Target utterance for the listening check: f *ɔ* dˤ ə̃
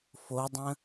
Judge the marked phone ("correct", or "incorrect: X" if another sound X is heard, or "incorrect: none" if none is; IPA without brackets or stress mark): incorrect: o